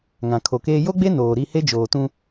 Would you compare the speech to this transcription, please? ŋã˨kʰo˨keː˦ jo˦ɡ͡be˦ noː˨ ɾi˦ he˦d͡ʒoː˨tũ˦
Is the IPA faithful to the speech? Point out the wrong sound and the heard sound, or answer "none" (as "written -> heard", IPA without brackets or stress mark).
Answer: none